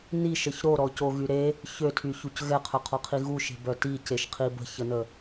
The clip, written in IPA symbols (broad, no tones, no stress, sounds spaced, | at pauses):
n i ʃ ə ç ɾ o ɾ ɔ c o ɣ y ɾ e | ç ø tʰ y ç u c ɣ ɛ qʰ œ qʰ ɔ qʰ i ɣ u ʃ e̤ b œ t i c e ʃ qʰ i b ə̤ ç ə n ə